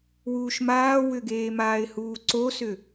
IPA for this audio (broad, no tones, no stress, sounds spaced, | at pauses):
w uː ʃ m aː w ʏ ɡ eː m aː ɪ̯ h uː ǀ o s ʏ